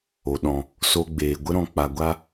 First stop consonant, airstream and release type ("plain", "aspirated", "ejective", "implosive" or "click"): implosive